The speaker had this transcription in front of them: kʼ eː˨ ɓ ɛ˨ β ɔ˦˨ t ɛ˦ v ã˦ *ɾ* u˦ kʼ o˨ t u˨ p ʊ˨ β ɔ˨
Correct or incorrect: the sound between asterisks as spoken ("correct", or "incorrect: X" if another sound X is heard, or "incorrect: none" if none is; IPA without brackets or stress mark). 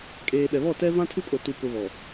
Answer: incorrect: tʰ